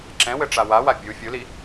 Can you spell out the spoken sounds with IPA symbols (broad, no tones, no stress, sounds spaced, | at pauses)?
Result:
ǁ ɛ̃ w ɘ ʈ͡ʂ a w a w a bʲ u fʲ u l i